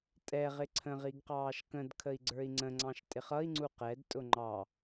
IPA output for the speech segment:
tʼ ɛ ʁ ɪ ǀʰ ə̃ ʁ i ɡ q ɑː ʃ k ə̃ d kʰ ə i̯ ɡ͡ǀ ə˞ i̯ ŋ͡ǀ ə̃ ŋ͡ǀ ɑ̃ ʃ tʼ ɪ χ ʌ i̯ ŋ͡ǀ u q ɛ d tʼ ʊ ŋ͡ǃ ɑ

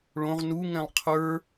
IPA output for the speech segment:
ɭ õ ʁ n u ŋ ɛ̃ lˠ qʰ ə˞

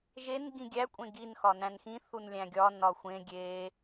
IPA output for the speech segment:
ʒ e n ɡ ĩ ɡʲ æ kʷʼ ẽ ɡ i n x ɒ n æ̃ n x ĩ θ u n lʲ æ̃ ɡʲ ɒ n ɒ xʷ ẽ ɡʲ eː

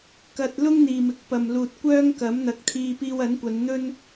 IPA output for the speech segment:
k ɐ˧ t̚ l ʊ˥ ŋ n̪ iː˨ m ɪ˨˥ k̚ p ɐ˨ m l uː˨ t̚ kʷ œː˥ ŋ k ɐ˨˥ m n̪ ɐ˨˥ k̚ t̪ʰ iː˧ p iː˧ w ɐ˨˥ n kʷ ɐ˨˧ n n̪ ɵ˥ n

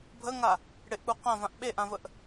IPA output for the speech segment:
bʱ ə ŋ a | ɽ ɪ ʔ k͡p u q ã v ã ʔ ɓ e ʔ ã v ə ʔ

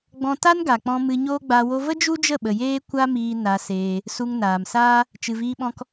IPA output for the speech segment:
ɡ͡b ɔ̃˧ t a˦ n ɡ a˨ k͡p ɔ̃˧ m ɨ˧ ɲ oː˦ ɡ͡b a˧ w o˧ v ə˦ d͡ʒ u˦ d͡ʒ ə˦˨ ɓ ə˨ j eː˦ kʷ a˦ m iː˧ n a˧ s eː˧ | s u˧ ŋ n aː˨ m s aː˦ | t͡ʃ ɨ˨ v iː˧ ɓ ɔ̃˧ k

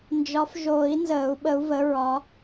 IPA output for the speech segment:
n d͡ʒ ɒ˨˦ f ʒ oː˨˩˦ i̯ n z əː˨˩˦ u̯ ɓ ə˨˦ u̯ v ə˨˦ ɹ ɒ˨˦

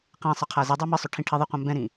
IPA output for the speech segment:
q ɛ̃ sˤ ʌ qʰ a z ɨ dˤ ɛ m ɨ sˤ ʏ ʈʰ ĩ ʈʰ i ðˤ ɛ qʷ ã m b ɛ̃ ɾ ĩ

